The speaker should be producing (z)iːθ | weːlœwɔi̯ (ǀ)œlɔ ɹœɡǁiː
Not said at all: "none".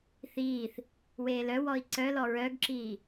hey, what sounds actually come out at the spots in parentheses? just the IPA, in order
θ, ǀ

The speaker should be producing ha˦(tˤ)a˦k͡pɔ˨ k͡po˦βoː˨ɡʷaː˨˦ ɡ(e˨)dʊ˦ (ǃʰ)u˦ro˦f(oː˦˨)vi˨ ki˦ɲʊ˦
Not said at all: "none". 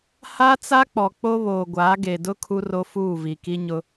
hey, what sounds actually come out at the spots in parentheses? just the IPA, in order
t͡s, e˨, kʰ, uː˦˨

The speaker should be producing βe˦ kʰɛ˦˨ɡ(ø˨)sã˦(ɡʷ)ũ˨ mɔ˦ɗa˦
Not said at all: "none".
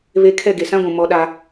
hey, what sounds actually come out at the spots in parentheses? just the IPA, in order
e˨, ɡʷ

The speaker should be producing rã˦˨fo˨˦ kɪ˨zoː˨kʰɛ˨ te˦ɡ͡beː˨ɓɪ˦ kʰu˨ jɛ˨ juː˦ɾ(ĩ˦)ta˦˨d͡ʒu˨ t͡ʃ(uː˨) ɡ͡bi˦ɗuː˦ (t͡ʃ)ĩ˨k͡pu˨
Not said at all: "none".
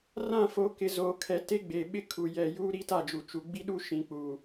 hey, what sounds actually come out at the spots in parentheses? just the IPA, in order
i˦, u˨, ʃ

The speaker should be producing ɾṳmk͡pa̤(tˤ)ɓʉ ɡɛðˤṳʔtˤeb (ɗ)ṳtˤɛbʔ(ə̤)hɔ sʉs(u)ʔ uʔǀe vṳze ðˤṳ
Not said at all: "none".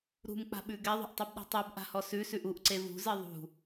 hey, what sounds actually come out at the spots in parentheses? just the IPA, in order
none, ɗ, a̤, ʉ

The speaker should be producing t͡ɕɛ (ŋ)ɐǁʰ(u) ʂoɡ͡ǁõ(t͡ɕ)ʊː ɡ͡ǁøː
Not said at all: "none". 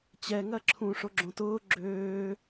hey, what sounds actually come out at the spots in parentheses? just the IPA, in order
ŋ, ũ, t

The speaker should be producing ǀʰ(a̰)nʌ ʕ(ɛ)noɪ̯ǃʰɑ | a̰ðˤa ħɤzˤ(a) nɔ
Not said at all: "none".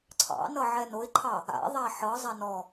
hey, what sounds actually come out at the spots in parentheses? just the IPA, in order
ɑ̰, ɛ, a

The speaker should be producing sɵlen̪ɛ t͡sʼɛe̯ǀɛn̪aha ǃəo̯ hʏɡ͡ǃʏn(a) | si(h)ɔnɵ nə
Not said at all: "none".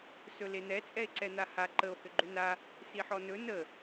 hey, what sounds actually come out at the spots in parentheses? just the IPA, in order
a, ħ

